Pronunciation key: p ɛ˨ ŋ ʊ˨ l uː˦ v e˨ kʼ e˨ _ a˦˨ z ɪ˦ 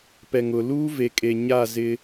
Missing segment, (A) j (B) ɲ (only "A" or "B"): B